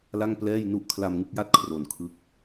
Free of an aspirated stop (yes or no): no